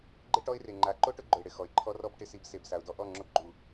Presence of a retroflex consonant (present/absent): present